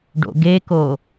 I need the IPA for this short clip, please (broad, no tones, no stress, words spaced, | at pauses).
ɖo̰ɡeko